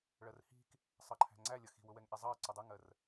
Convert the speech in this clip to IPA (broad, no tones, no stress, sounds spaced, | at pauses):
ɭ ɜ r h i̤ k | sˤ ɑ ǃʰ æ̤ ŋ͡ǀ æ lʲ ʌ x i̤ w ʊ w ɛ ŋ ʔ ɛ zˤ ɑ ə̯ ǀ ʊ dˤ ə ŋ ɜ r